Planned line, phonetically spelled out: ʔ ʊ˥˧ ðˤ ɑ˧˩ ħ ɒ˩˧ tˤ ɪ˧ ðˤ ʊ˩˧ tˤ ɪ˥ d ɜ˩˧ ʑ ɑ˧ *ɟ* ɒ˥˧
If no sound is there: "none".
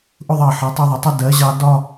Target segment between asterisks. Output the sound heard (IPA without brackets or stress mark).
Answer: d